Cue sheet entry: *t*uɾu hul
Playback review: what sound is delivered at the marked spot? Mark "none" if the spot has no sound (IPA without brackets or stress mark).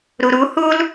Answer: ɾ